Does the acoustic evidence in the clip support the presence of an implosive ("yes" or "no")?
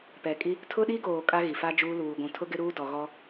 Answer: yes